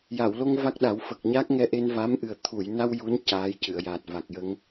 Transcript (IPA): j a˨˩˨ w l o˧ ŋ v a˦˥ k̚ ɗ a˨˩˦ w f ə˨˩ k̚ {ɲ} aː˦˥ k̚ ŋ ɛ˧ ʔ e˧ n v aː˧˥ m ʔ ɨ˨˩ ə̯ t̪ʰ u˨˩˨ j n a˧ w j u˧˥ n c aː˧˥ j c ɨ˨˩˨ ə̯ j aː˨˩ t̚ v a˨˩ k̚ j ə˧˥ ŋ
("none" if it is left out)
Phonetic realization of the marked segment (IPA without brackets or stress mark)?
ɲ